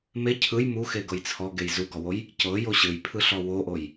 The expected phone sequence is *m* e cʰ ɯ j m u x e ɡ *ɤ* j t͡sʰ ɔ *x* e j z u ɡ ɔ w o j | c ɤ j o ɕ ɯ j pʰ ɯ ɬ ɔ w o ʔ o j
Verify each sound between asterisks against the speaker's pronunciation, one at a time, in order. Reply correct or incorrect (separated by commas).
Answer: correct, correct, incorrect